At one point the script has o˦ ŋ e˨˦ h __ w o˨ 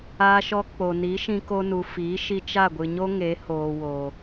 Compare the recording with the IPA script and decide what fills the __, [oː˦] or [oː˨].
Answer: oː˨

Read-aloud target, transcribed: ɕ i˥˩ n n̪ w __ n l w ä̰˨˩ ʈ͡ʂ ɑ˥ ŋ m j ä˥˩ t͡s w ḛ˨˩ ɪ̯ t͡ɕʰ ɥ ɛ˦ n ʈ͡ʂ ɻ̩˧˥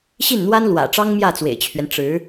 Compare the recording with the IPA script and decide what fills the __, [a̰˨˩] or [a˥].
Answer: a˥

